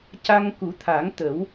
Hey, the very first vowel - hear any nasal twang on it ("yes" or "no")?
no